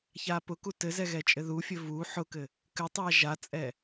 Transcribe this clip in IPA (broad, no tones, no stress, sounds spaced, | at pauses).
ç a p ʊ k u t ɘ z ɛ ɣ ɛ t͡ʃʼ ɘ ð u fʲ ɘ v u ħ ʊ k ɘ | k ɘ tˤ a ʒ a t͡sʼ ɛ